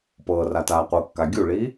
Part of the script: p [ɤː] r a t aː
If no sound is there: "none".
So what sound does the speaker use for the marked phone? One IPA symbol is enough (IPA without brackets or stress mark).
ɤː